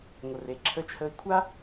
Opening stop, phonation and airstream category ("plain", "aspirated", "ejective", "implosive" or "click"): click